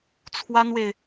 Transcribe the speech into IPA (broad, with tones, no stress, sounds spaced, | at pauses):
t͡sʰ w a˥ n w e˨ ɪ̯